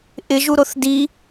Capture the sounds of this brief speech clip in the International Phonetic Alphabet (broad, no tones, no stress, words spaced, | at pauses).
ʔɪʒu ɾoθdi